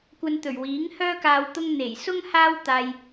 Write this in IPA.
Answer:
kʷ ɐ˧ n t̪ ɵ˨˩ ɥ w iː˨˥ ŋ h œː˥ k aː˧ w t̪ ʊ˧ ŋ n̪ e˨˩ j s ʊ˥ ŋ h aː˥ w t̪ aː˧ j

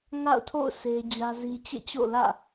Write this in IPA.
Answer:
ŋ a̰˦˨ ʊ̯ tʰ o̰˦˨ ʊ̯ sʰ e˦ d͡ʑ ä˦ z i˦ t͡ɕ ḛ˦˨ t͡ɕ o̰˦˨ l ä̰˦˨

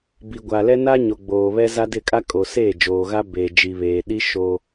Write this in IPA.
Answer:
b i˨ ɡʷ a˨ l ɛ˦ n a˦ ɲ o˨ ɡ͡b oː˨ β ɛ˦ z a˦ d ɪ˦˨ kʼ a˦ kʼ o˨ s eː˦˨ d͡ʒ oː˨ ɣ a˦ b eː˨ d͡ʒ i˨ β eː˨ ɗ i˦ ʃ o˦

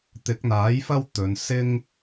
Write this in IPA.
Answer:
t̪ ɪ˨˥ k̚ n̪ aː˨˥ j f ɐ˥ w t̪ ɵ˨˧ n s ɪ˥ ŋ

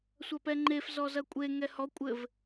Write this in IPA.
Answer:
sʷ ɐ p ɛ ŋ͡ǃ e f z ɔ z ɐ kʷʼ e ŋ ɛ h ɔ kʷʼ ɘ v

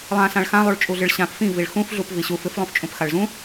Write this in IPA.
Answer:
lˠ ã s ã ɭ x ã lˠ u ɭ t͡ʃʼ u ɮ ɨ ɭ ɕ ã p f ĩ v i ɭ x ũ f ɮ u p v i ɕ u f ɨ f lˠ ũ f t͡ʃʼ ũ p x a ɭ z ũ

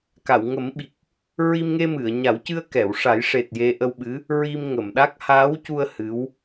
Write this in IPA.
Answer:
k a˨˩˨ w ŋ ə˨˩˦ m ɓ i˨˩ k̚ | ɹ i˧ m ŋ e˧ m ɨ˨˩˨ ə̯ ɲ a˨˩˦ w c ɨ˧ ə̯ k ɛ˨˩˨ w ʂ a˨˩˦ j ʂ e˨˩ t̚ j e˧ ʔ ə˧ w ɓ ɨ˧˥ | ɹ i˧ m ŋ ə˨˩˨ m ɗ a˦˥ k̚ h aː˧˥ w c u˧ ə̯ h ɨ˧˥ w

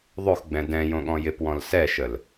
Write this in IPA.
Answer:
ðˤ o x ɡ͡b ɛ̃ d ɛ̃ j õ ɠ ɔ̃ j ɪ p w ɔ̃ l s ɛ ʃ ə l

